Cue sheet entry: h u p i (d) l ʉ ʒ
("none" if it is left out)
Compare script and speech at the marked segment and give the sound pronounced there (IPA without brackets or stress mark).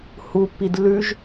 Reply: d